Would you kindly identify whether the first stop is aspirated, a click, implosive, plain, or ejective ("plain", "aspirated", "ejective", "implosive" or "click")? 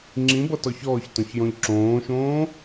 click